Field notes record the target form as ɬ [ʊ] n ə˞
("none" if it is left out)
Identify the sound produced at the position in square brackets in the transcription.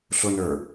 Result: ʊ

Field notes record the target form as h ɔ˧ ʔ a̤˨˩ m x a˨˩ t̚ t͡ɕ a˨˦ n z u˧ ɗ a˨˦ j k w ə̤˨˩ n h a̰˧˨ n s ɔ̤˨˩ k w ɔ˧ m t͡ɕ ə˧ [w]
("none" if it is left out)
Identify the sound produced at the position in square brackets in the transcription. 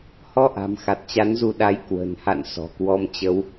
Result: w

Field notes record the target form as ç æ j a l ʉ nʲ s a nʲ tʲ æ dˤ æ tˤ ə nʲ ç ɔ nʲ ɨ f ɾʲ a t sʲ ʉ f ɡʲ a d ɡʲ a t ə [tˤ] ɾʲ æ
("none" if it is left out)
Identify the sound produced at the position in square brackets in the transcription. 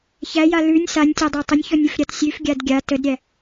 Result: d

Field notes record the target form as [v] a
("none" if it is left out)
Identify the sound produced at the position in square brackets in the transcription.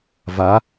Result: v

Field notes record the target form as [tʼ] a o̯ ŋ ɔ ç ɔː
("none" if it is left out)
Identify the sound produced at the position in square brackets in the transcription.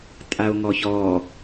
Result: tʼ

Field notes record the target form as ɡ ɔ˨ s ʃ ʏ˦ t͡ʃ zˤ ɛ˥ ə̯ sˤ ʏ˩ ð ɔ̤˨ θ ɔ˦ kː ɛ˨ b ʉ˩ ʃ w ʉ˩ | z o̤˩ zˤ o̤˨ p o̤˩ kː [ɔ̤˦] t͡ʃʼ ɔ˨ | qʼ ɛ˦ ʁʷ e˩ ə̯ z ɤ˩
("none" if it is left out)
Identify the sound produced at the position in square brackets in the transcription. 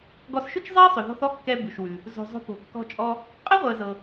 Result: ɔ̤˨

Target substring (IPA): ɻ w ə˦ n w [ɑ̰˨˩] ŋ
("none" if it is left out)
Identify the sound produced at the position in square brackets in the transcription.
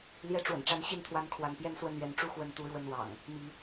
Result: ɑ̰˨˩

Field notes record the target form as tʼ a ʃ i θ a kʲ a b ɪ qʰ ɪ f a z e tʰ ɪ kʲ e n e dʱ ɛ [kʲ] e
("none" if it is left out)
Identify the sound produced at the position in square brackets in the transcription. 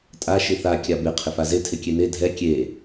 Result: kʲ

